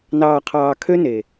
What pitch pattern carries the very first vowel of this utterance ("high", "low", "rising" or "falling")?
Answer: low